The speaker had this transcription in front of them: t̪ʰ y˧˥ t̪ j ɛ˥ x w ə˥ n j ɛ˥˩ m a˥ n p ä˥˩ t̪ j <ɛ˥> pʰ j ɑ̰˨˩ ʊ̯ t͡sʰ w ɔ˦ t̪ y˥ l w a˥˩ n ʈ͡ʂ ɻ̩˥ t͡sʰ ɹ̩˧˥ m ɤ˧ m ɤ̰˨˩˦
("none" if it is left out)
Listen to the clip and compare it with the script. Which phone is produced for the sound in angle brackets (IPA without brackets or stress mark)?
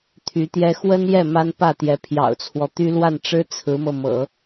ɛ˧˥